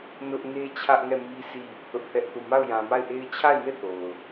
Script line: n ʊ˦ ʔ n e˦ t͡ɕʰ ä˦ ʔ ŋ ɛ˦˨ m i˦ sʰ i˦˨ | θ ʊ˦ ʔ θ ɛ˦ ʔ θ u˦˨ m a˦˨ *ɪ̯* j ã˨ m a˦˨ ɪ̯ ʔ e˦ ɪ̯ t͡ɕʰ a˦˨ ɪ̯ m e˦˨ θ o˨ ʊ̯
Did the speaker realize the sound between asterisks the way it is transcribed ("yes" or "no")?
no